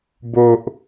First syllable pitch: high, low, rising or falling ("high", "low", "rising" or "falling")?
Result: low